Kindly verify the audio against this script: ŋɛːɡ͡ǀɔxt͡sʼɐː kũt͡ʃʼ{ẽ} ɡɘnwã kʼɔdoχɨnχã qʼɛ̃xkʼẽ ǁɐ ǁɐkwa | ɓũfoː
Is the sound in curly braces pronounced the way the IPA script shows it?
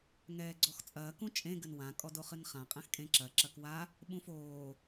yes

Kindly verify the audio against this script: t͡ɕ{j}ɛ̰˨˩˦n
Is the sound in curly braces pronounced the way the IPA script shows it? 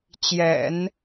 yes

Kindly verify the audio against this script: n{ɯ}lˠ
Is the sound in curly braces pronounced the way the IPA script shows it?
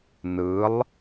yes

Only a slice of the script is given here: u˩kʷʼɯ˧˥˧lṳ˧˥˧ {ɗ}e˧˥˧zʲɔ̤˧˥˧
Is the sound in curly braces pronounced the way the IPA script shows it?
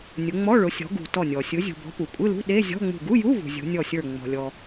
yes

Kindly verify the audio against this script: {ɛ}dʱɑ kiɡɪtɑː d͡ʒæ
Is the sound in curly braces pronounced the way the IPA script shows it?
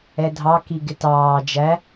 yes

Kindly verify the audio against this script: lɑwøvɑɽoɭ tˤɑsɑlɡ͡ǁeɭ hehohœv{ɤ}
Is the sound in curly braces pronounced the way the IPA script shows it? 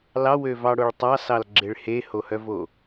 no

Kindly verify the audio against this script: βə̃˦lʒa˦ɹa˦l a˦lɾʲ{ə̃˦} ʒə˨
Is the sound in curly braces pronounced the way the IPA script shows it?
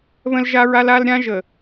no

